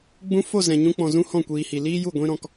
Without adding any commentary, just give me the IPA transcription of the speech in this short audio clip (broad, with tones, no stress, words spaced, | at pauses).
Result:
ɡ͡bũ˧fo˦˨ zɛ̃˨ɲũ˧k͡pɔ̃˨ zũ˦hɔ̃˦˨kʷiː˨hi˨ liː˦ju˦˨ ɡʷĩ˦ɾɔ̃˧k